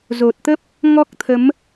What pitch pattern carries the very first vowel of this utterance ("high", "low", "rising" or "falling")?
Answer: low